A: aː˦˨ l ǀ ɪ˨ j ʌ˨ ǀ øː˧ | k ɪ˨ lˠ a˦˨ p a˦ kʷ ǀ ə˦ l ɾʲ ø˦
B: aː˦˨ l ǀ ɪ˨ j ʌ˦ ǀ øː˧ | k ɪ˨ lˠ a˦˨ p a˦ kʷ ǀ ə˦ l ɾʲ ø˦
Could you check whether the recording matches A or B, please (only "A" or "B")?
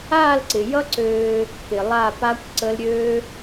B